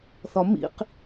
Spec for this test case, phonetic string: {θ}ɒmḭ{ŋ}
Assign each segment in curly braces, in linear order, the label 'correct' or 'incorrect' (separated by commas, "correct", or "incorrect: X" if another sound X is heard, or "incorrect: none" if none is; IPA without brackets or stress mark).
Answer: correct, incorrect: q